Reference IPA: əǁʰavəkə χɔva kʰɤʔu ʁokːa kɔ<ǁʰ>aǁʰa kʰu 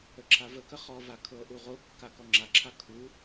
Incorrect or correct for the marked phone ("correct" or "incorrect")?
incorrect